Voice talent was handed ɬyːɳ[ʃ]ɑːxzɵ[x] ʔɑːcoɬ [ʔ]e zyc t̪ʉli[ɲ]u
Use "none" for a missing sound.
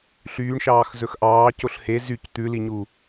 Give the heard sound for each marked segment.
ʃ, x, h, ɲ

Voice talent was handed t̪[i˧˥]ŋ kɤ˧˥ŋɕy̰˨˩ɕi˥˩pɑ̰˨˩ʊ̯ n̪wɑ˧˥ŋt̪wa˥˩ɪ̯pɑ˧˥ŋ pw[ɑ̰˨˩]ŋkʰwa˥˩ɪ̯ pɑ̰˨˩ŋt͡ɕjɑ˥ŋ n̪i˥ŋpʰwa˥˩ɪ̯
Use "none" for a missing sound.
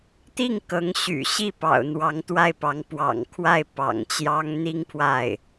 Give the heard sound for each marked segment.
i˥˩, ɑ̰˨˩

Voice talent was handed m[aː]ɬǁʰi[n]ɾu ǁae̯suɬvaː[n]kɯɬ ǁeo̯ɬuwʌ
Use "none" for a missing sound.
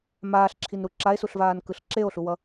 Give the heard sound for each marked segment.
aː, n, n

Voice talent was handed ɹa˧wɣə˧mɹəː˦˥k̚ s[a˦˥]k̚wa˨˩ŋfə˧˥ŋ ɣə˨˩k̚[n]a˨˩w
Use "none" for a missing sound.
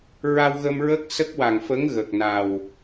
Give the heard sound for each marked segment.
ə˦˥, n

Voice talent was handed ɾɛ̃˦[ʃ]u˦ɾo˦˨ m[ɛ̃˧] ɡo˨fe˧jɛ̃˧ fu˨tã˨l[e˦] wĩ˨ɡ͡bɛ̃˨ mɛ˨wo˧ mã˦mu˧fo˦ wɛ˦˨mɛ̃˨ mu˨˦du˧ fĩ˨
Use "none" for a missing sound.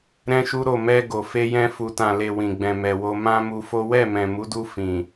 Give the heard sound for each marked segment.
ʃ, ɛ˧, e˨

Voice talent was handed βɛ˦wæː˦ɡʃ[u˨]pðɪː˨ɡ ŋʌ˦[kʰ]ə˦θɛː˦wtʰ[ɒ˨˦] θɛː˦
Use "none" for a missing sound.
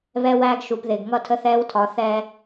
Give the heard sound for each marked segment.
u˨, tʰ, ɒ˨˦

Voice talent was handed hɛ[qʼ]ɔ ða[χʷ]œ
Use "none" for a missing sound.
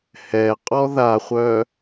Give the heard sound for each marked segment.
qʼ, χʷ

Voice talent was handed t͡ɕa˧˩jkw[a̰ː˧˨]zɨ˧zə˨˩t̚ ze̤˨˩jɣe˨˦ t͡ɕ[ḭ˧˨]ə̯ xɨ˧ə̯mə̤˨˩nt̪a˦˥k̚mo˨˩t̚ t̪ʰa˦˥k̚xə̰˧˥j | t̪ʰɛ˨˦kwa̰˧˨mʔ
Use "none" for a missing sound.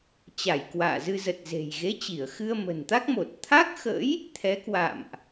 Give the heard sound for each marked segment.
a̰ː˧˨, i˧˩

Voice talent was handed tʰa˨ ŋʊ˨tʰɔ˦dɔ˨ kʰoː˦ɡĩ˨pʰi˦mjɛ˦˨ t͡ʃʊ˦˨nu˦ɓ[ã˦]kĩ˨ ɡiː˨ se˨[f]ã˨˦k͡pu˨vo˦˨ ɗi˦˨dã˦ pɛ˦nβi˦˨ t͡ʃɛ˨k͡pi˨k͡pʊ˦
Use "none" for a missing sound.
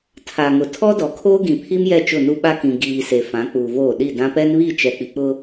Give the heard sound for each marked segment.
a˦, f

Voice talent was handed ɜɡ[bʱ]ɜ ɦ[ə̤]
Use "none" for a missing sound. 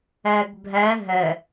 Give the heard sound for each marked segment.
bʱ, ə

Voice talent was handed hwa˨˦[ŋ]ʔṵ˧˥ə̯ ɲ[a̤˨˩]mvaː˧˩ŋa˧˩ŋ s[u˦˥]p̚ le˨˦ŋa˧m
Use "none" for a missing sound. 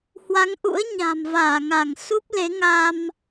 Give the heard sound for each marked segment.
ŋ, a̤˨˩, u˦˥

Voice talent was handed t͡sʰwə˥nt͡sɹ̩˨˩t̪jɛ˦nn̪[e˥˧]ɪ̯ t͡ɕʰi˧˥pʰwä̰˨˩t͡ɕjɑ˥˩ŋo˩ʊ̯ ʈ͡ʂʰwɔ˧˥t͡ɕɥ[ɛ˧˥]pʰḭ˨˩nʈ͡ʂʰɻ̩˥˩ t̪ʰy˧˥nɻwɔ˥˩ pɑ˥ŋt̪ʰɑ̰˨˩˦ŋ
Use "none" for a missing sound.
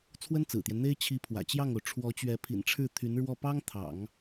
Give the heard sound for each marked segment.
e˥, ɛ˧˥

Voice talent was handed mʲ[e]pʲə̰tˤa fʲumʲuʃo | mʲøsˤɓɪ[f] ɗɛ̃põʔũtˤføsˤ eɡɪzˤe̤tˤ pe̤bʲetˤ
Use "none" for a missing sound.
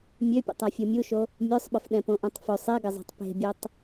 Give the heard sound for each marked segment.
ø, f

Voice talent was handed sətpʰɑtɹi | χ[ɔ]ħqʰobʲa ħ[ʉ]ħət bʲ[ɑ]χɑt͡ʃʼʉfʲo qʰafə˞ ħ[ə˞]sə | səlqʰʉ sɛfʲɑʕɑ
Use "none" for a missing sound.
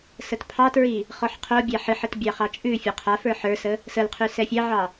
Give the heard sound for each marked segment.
ɔ, ɨ, ɑ, ə˞

